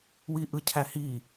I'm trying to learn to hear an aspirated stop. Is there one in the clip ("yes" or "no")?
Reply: yes